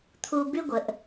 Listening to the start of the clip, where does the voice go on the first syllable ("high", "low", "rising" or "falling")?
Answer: low